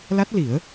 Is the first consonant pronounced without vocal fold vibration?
no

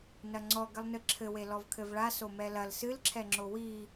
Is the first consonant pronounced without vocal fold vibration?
no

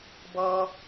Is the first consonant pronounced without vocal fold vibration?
no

